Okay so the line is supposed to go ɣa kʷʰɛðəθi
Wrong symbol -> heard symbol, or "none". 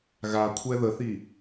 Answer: none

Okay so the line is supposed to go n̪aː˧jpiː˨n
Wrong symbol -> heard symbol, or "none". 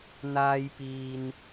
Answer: none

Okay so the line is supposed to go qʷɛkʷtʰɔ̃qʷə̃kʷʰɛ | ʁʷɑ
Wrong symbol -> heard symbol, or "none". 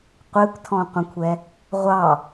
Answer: none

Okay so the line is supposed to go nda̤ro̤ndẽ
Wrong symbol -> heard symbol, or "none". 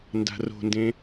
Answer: none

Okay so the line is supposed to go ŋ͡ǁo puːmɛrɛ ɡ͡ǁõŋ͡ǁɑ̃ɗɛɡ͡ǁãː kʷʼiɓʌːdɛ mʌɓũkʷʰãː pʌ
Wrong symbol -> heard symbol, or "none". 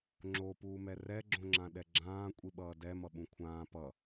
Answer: ɑ̃ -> ã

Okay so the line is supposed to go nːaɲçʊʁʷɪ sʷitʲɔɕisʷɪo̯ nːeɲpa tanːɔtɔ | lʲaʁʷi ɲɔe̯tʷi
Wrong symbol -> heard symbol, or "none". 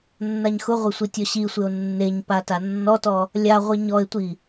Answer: ç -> x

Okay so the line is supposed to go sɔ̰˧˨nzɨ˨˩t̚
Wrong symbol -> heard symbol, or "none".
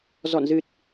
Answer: s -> z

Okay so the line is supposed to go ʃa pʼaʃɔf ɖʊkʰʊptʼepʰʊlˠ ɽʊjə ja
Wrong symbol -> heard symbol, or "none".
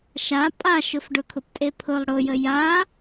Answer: ɔ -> ʊ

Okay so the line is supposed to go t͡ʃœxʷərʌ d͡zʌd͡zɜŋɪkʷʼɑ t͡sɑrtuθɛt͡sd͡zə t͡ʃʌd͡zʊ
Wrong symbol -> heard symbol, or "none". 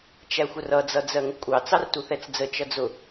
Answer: œ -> æ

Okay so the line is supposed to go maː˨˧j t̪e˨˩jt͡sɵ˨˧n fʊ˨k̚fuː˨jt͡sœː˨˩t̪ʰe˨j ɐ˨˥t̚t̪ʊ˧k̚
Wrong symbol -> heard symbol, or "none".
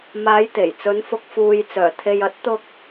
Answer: none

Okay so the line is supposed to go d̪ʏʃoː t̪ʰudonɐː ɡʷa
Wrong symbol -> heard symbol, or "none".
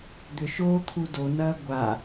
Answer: none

